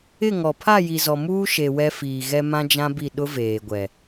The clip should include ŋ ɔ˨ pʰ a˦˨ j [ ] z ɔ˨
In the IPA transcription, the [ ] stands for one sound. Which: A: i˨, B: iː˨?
A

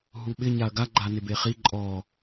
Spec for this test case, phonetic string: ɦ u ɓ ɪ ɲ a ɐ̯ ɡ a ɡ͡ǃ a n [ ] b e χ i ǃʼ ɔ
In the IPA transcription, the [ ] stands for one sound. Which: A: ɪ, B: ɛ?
A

